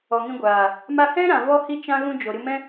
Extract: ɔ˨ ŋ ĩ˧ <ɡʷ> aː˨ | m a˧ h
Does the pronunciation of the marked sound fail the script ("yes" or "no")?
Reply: no